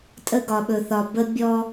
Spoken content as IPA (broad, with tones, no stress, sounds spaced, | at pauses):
tʼ ə˦ ɡ ɒ˨ ɓ ɵ˨ θ ɒ˨ b ə˦ bʲ ɔ˦